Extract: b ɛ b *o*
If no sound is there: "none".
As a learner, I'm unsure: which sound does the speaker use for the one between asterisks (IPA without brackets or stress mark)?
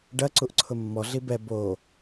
o